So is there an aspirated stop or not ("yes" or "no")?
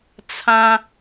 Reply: yes